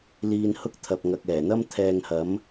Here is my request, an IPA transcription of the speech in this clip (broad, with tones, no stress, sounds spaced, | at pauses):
l iː˧ n h ʊ˥ k̚ t̪ʰ ɐ˨ p̚ ŋ ɐ˨ k̚ ɛː˨˩ n̪ ɐ˥ m t̪ʰ ɛː˧ ŋ h ɐ˨˥ m